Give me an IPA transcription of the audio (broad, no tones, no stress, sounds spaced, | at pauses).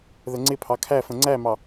ð ə ŋ͡ǀ ɪ pʰ ɑ kʰ æ f ə̃ ŋ͡ǀ æ m ɑ